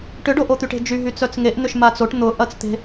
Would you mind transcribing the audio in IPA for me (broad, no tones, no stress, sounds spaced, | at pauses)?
ʈ ʏ ɖ o ʔ o t̪ y ʈ e̤ d͡ʒ y ɦ y t͡s œ t͡s ŋ e ʔ n̪ ʏ ʃ m a t͡s o ʈ n̪ ʊ ʔ ɐ t͡s t̪ e̤